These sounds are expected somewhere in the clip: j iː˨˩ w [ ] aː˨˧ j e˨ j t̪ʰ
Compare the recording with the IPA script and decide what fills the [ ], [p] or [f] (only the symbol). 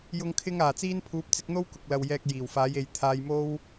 f